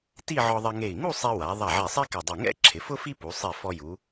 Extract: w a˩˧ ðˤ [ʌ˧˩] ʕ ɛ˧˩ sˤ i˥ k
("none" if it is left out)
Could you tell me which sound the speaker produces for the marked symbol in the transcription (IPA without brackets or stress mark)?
a˧˩